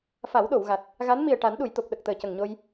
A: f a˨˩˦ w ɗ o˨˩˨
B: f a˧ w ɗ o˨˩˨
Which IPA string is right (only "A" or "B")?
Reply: A